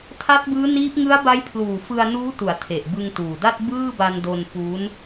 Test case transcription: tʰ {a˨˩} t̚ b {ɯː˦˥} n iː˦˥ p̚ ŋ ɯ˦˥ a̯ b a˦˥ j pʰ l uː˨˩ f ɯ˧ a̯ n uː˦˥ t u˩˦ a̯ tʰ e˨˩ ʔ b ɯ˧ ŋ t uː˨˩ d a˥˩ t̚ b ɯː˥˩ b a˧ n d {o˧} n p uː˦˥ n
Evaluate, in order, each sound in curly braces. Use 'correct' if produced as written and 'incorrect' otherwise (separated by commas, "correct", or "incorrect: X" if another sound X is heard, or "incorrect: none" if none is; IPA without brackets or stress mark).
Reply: incorrect: a˦˥, correct, correct